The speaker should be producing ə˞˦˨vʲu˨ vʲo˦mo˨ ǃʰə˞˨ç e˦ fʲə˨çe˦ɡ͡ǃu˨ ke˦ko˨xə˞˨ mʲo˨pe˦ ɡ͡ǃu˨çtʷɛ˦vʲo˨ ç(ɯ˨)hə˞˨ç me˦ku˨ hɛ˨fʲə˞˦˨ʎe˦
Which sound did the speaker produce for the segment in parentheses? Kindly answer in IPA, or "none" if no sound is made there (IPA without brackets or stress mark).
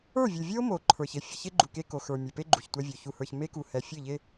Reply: u˨